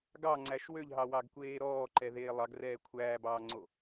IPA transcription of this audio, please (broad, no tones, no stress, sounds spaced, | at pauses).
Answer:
ɡ ɑ ŋ͡ǀ æ ʃ w ø ʎ ɦ ɑ w ɑ ɡ kʷ eː ɾ ɔː ǃ ɛ ð eː lˠ ɑ ɡ r ɛː kʷʰ æː b ɑː ŋ͡ǀ o